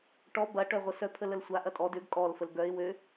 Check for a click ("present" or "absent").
absent